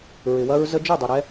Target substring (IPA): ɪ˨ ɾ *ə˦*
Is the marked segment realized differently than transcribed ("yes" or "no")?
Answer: yes